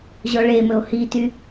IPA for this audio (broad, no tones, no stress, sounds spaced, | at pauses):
ʑ ɔ ɭ e m ɵ o̯ h i t y